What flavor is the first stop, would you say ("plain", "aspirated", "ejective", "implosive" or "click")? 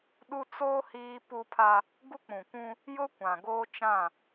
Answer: implosive